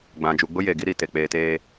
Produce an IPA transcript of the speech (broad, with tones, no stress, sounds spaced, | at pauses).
ɡ͡b ã˨ d͡ʒ u˨ ɡ͡b ʊ˦ j e˨ ɡ i˦ ɾ i˨ t e˨ k͡p eː˨ t eː˨